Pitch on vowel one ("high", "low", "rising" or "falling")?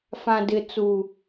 low